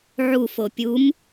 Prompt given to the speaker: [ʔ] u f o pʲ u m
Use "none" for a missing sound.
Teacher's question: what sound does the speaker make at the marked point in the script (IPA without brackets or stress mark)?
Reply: ʕ